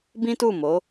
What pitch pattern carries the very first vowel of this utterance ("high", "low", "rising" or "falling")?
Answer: high